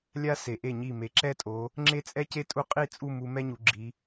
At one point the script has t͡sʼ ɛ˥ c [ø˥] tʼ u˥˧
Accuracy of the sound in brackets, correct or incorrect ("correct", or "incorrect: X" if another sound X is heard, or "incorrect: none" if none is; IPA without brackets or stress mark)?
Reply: incorrect: e˥